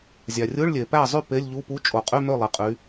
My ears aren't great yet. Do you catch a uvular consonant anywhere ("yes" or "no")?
yes